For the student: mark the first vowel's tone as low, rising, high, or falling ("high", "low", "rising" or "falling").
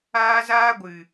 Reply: high